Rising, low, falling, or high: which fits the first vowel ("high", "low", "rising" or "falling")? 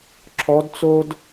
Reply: rising